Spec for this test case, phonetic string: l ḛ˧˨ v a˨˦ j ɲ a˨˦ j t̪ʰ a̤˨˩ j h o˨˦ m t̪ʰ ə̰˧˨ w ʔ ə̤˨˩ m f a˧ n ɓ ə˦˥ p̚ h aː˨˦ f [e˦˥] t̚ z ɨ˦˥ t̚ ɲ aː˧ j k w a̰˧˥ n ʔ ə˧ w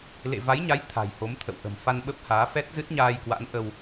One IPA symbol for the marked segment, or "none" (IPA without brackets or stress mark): ɛ˦˥